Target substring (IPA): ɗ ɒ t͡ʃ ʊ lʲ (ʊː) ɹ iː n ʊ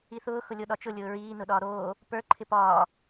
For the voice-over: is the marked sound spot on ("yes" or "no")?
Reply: yes